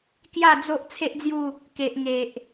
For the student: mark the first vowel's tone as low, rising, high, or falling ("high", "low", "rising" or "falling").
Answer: falling